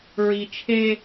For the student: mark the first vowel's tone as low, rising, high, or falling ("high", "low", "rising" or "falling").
low